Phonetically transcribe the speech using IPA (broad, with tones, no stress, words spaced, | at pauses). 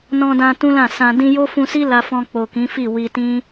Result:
nɔ̃˧dã˧ tũ˦lã˦˨sã˧ dĩ˧jo˦fũ˧si˦ la˧fɔ̃˧k͡po˨ kĩ˨˦fi˦˨wi˧ tĩ˦